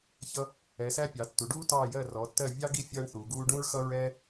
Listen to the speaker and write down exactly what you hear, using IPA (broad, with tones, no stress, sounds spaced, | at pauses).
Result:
ç ʌ˥ | ɛ˩˧ s æ˥ pʲ ɑ˩˧ tː u˩˧ ɖ uː˥ t ɑː˦˨ j ɜ˦˨ r ɔ˩˧ tː ɜ˦˨ vʲ ɑ˥ ɡ i˥ fʲ ʌː˥ ɳ θ uː˩˧ ɡ uː˥ ɖ ũ˥ ɹ x ʌ˥ ɹ ɛː˥